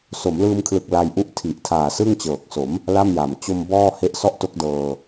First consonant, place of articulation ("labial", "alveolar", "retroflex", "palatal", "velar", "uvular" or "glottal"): alveolar